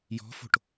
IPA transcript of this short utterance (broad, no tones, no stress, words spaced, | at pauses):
jɔ̤fo̤ʈ